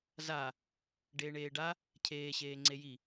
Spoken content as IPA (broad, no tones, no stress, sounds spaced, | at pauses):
z a | ɖ eː ɳ eː ɖ a | cʰ eː ɕ eː ŋ͡ǀ e j i